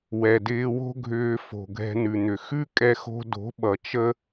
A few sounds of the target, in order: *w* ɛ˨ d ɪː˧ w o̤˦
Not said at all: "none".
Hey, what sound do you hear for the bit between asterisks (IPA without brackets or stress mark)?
w